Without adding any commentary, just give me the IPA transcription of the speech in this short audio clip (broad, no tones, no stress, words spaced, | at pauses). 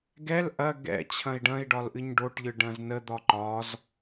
ɡɛl ʔɐ ɡɛ̰ t͡ɕʰɐ̃i̯ɖɐ̃i̯ɖɒl ʔɨɲɖoʈʎɯ ɖɐ̃znəd̪ɒ ǃɒz